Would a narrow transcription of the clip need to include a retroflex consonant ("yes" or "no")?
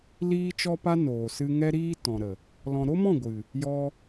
no